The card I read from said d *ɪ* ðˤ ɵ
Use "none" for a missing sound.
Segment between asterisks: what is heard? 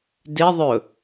ɪ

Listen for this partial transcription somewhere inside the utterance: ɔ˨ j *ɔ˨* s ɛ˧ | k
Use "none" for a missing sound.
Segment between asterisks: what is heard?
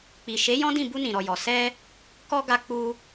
ɔ˨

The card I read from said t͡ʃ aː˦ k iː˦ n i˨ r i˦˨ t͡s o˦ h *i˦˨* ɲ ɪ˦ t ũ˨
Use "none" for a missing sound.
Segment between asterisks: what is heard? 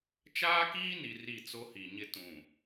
i˨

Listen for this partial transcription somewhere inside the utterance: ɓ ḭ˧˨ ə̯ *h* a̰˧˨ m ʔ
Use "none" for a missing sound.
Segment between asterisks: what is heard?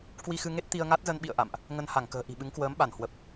ʔ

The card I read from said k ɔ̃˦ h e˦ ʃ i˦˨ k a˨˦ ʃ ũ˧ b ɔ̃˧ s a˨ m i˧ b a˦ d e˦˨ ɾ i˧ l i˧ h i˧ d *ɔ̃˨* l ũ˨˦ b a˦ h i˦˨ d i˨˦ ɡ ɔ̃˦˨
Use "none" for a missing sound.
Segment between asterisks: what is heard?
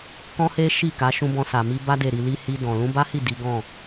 ɔ̃˨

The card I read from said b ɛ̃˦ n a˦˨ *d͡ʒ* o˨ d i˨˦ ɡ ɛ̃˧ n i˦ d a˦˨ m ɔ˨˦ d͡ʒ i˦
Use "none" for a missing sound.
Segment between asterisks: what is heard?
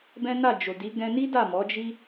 d͡ʒ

